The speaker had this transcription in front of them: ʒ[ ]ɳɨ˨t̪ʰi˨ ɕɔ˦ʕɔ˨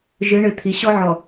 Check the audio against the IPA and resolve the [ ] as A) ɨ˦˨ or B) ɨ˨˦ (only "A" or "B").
B